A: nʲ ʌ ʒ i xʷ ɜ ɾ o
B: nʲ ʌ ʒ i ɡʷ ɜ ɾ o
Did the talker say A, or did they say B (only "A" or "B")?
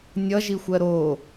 A